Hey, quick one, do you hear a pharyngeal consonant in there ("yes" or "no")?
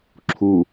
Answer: no